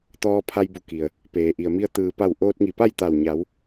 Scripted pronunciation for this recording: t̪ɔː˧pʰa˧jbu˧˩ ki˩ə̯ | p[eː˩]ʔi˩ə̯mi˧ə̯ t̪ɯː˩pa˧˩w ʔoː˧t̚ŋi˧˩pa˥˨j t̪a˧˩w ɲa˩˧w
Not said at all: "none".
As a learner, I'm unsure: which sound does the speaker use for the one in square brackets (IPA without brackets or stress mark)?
eː˩